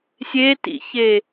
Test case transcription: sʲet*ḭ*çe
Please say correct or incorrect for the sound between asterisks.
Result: correct